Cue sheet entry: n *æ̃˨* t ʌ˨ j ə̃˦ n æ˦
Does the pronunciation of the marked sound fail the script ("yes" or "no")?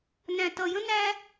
no